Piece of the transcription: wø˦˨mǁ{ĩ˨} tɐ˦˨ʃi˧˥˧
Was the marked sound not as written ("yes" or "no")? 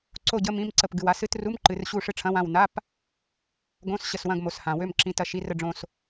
no